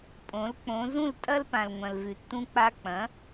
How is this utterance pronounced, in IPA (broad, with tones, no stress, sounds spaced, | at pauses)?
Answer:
pʼ õ˩˥ l k͡p õ˩˥ z ũ˥˩ l tʼ ɐ˥ l p ã˩ l ŋʷ ɐ̃˩ l v ʉ˩ tː ũ˧ k͡p a˧ k͡p ɐ̃˩˥